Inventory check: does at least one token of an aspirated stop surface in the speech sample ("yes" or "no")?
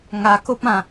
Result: no